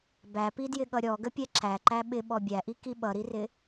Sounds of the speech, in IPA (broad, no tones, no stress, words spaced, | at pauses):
bæpidjɪɠʌ ɾʲɔɡəpʲɛ ǁæǃæ ɓɪɓɔ bʲæʔiki ɓʌɾirɪ